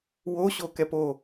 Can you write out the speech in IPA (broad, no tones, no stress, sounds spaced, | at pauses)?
w o ɕ o k ɛ p o